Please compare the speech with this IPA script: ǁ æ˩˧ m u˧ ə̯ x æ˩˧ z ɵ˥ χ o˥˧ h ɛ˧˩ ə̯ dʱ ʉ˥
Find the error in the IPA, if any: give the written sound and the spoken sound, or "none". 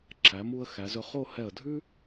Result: ɵ˥ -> ɵ˧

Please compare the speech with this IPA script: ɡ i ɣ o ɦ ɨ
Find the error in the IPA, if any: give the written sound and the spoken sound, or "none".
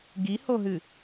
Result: ɣ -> h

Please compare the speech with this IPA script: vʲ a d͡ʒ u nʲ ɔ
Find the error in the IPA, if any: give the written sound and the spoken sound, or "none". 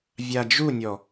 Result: none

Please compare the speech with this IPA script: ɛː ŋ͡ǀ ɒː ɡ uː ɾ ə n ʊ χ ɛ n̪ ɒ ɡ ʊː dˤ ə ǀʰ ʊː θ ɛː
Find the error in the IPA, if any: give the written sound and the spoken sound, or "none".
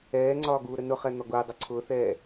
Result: none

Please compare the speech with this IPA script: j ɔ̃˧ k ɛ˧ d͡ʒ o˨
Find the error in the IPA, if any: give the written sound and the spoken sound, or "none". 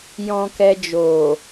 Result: none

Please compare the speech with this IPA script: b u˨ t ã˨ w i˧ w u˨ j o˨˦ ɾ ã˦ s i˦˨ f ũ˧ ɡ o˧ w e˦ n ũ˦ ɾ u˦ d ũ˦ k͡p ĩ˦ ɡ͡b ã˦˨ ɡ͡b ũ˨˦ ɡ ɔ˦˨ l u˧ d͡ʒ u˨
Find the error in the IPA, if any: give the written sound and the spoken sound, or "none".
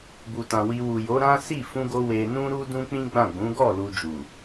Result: e˦ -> e˧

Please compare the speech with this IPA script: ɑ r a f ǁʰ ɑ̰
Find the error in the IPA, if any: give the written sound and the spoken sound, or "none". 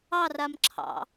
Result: f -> m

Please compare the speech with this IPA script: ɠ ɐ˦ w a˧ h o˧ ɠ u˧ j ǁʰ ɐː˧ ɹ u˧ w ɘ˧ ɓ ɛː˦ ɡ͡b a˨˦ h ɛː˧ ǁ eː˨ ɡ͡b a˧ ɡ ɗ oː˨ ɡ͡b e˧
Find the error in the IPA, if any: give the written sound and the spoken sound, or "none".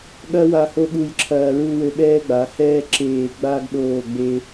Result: o˧ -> o˦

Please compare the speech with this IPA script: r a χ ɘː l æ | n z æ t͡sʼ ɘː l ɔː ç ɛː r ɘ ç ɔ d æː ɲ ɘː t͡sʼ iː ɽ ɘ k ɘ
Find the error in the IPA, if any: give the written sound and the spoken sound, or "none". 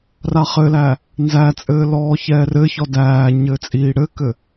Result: none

